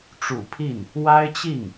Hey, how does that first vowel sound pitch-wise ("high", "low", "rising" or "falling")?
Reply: low